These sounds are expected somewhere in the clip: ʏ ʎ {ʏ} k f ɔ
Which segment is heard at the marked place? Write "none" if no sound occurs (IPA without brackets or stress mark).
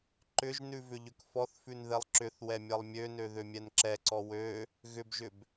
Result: ʏ